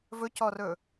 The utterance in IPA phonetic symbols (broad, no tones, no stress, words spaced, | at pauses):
vɵcɔrɵ